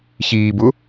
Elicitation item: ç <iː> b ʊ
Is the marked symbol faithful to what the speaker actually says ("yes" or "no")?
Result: yes